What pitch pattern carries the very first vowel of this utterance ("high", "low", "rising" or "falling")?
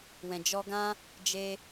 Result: low